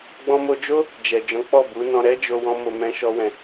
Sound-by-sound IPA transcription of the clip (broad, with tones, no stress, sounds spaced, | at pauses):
ɡ͡b ɔ̃˧ m o˧ d͡ʒ o˦ | d͡ʒ ɛ˨ d͡ʒ ɔ̃˨˦ k͡p ɔ˦˨ b u˨˦ n ɔ̃˧ ɾ ɛ˦ d͡ʒ o˧ w ɔ̃˦ m o˧ m ɛ̃˦ ʃ ɔ˦ w ɛ̃˧